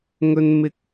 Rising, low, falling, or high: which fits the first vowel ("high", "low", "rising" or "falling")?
low